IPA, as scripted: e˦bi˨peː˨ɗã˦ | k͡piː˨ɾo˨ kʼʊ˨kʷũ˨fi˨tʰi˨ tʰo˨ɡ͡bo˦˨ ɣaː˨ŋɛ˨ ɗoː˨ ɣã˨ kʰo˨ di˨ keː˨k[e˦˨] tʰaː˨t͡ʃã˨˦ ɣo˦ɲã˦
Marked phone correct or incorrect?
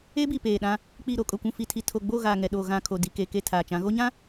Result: correct